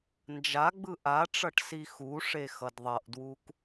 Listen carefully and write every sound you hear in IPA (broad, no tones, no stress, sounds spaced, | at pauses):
n d͡ʒ a ɡ͡b ɯ ʔ a ʈ͡ʂ ʌ ʈ s i x u ʂ e x ʌ d ðˤ ʌ ʔ d w u k